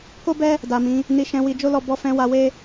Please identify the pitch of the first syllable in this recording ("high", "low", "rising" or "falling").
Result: high